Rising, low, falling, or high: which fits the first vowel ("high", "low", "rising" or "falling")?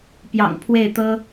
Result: low